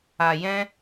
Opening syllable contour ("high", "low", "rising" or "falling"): low